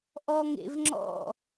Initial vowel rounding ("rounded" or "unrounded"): rounded